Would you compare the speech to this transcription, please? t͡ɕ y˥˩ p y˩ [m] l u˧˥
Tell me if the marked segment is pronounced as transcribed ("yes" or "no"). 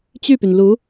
no